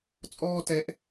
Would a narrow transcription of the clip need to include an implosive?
no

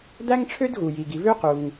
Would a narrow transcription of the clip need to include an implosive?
no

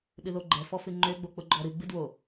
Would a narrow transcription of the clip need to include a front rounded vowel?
yes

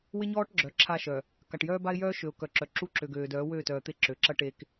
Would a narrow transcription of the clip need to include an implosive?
no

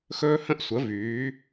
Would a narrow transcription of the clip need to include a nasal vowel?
yes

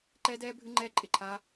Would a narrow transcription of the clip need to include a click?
yes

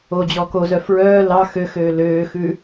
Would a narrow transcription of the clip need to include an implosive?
no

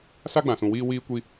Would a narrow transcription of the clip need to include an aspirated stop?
no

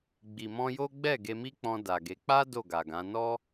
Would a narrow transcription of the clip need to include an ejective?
no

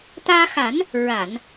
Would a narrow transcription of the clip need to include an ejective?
no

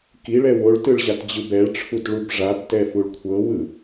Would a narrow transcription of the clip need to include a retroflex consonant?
yes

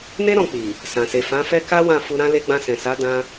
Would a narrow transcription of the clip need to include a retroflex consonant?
no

